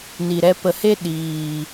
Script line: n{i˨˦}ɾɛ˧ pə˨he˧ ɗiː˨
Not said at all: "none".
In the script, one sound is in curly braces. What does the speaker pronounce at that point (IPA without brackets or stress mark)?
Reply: i˨